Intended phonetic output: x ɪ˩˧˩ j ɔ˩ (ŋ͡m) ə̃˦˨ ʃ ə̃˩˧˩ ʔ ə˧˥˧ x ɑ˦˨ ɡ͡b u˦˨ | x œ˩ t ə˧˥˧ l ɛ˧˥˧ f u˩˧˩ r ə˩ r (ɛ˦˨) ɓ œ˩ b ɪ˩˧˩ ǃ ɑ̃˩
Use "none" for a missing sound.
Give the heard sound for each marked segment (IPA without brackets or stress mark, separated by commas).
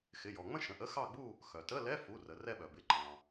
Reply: ŋ͡m, ɛ˦˨